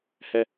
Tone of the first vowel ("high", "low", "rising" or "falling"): falling